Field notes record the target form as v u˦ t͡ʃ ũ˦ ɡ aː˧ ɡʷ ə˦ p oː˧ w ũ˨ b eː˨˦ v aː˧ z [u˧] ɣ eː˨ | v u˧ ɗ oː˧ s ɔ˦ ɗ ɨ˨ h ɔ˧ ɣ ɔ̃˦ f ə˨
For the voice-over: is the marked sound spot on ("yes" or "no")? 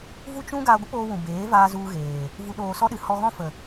yes